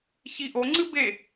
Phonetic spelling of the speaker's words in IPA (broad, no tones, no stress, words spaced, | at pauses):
çiʔoŋ͡ǀɨ be